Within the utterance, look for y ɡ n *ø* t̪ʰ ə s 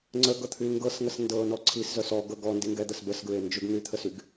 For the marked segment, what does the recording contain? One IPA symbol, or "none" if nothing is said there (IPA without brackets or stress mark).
y